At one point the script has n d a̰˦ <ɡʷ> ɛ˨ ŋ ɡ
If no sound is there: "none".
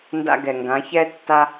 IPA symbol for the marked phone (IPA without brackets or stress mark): ɡ